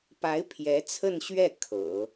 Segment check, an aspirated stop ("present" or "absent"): present